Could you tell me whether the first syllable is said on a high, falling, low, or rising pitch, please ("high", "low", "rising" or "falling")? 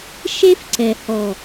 high